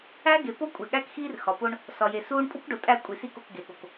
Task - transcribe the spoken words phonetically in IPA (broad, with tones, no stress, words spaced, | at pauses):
æ˦ɡe˨ po˦kʷʼe˨ɠæ˦kxiː˦r xɒ˨po˦ɳ | sɒ˨je˨suː˦ɳ pʼu˦kɖo˨ tʼæ˦˨ kʷʼi˨si˦˨ko˨k ɡe˨ɠo˨k